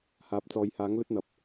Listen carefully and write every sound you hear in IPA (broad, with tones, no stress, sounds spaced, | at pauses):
h aː˨˥ p̚ t͡s ɔː˨˧ j h aː˨˥ ŋ l ɵ˥ t̚ n̪ ɐ˨ p̚